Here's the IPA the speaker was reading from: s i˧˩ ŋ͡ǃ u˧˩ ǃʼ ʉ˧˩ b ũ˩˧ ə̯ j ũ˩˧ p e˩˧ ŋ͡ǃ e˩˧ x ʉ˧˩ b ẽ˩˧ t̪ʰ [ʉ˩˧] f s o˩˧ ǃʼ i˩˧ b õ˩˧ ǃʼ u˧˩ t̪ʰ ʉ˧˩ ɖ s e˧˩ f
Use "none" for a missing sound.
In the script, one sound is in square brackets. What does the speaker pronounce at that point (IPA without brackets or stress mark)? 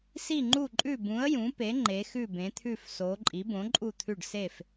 ʉ˧˩